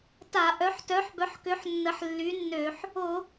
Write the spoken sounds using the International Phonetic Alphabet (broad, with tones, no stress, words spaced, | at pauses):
ta˧˩˧ʔœ˨˥ħ tœ˨˥ħbœ˨˥ħkø˨˥ħ nːə˨˥ħlːy˨˥nːø˧˩˧ħ | o˧˩˧